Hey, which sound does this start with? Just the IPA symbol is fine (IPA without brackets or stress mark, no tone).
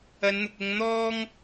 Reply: ɐ